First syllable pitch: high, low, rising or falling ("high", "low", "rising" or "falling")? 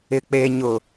low